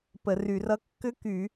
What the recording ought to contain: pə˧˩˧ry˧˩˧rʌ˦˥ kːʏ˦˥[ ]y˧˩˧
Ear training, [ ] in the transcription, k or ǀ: k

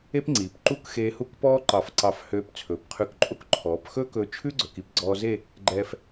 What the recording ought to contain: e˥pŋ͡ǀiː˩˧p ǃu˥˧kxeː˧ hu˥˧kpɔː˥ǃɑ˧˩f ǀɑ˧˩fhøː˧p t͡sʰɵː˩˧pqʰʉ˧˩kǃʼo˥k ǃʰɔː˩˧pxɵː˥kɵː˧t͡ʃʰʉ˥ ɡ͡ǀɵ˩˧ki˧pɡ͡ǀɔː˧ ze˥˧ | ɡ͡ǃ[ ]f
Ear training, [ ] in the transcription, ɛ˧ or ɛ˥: ɛ˧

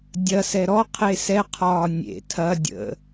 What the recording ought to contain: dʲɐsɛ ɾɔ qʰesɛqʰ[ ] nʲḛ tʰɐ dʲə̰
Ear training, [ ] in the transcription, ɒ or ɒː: ɒː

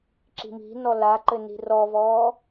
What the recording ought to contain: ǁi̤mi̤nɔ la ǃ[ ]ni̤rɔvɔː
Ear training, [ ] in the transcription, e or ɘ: ɘ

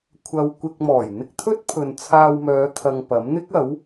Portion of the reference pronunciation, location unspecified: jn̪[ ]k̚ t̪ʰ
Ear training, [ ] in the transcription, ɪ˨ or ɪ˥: ɪ˥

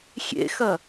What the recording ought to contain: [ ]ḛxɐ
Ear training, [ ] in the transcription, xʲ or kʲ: xʲ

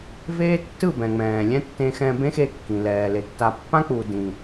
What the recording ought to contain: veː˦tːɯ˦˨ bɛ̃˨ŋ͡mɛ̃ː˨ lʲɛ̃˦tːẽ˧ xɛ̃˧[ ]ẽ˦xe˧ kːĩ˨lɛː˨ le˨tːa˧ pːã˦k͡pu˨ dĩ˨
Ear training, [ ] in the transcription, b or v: b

